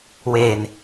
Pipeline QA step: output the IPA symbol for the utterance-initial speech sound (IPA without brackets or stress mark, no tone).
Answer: w